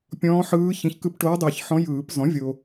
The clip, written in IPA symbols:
pʲɔ̃ː˧˥ħɯː˧˥çĩ˨ç kɯ˧˥pʈoː˧˥dˤɯː˨˩˦ç ħɔ̃˧˥jɯː˨˩˦p zɔ̃˩˥vʲo˨

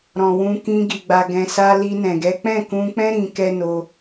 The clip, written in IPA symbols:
ɾɔ̃˨wũ˧kĩ˧ ɡi˨ ɡ͡ba˨ɡɛ̃˨sa˧ li˧nɛ̃˨ɡɛ˨˦ k͡pɛ̃˦˨kũ˧k͡pɛ̃˦ ɾĩ˧ kɛ˦no˧

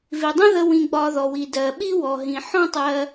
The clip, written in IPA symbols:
vi˩dˤə̃˥ðə˧ wĩ˧ɡ͡bɒ˧ðɔ˩wi˩ dɜ˩ ɓi˥wɔ˩ɦĩ˩ ħɔ̃˥tˤɜ˧

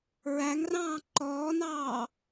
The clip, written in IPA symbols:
ɹæŋrɑ̃ː ǃɔːnɑː

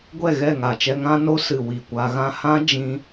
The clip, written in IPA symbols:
ɡʷɛ˦˨ ɣɛ˦˨ŋa˨t͡ʃɛ˧ŋã˦ no˦ sɨ˨ wi˨kʷa˧ɣã˦ hã˦ d͡ʒĩ˦

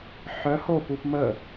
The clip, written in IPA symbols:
ħœ hopup mə

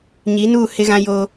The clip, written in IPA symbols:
ɲi˨˦nuː˦˨ hɪ˦ɣã˦ jo˦

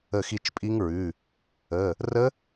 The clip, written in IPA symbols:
ə˦˨xi˦˨t͡ʃpʼi˦˥ŋɹʉ˩˧˩ | ə˩˧˩ | rə˦˥

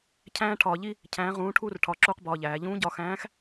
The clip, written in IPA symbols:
cʰæ̃ː˥ʈʰɒː˧ʎi˥ | cʰæ̃ː˧˥ʁũː˧˥ʈʰuː˥r ʈʰɒ˧˥ǁuː˥qbɒː˧ʎæː˩˧ ʎũː˧˥ɟɒː˧xæ̃ː˧˥x

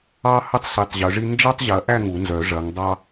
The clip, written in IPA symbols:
ɑ˥hɐ˥tˤ si˨˦tˤʑœ˨˦ʐi˥ nd͡ʒɑ˥tˤʑɐ˨˦ʔæ˥˧ ŋu˨˩˦nzœ˨˩˦ʐɐ˨˦ŋdˤɑ˥

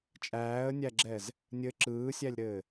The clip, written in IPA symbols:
t͡ʃʼæːə̯nʲæɡ͡ǁɛz | nʲɘ ǁɯːsʲælʲɾɘː

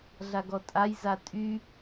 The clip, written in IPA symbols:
ɮaɡɔtʼaj zatʼy

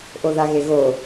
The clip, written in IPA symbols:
ʔoðaɣeɣo

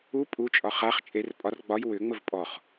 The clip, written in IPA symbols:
u pʼut͡ʃʼɒ χaχ t͡ʃʼer pʼɒr ɡ͡bɒj wʏŋ͡məv pʼɔχ

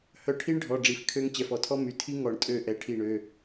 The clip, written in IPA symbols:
hœ˧˩ʈʰi˦˥ɳɖʱɔ˩˧˩ ɖ͡ʐi˩˧˩fkʰø˦˥ŋ t͡ɕɛ˩˧˩fɔ˨˩˦tʰɔ˦˥ my˩˧˩tʰi˦˥ ŋɔ˨˩˦ɳ tʼø˧˩ ʔɛ˨˩˦ʈʰi˧˩ɳø˩˧˩

